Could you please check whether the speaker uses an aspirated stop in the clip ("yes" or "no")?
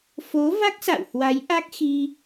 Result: no